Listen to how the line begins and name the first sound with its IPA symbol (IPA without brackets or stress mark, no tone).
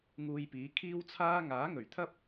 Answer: ŋ